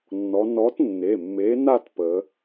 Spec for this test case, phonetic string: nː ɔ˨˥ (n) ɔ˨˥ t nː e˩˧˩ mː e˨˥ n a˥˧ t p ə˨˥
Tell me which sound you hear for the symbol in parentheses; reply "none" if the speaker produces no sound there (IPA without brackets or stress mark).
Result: n